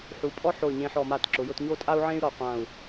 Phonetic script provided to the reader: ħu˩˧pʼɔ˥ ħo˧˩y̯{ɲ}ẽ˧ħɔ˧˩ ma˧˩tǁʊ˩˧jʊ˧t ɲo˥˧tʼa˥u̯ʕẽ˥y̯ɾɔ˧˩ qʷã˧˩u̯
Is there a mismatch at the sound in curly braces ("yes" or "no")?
no